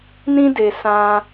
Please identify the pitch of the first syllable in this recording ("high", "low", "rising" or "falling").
high